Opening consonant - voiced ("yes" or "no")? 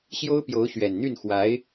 no